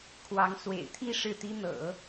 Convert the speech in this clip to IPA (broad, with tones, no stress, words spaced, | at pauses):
kʰwɑ˧˥ŋ swḛ˨˩ɪ̯t̪ʰi˥˧ ʂɻ̩˥˩t̪i˥n̪ɤ̰˨˩˦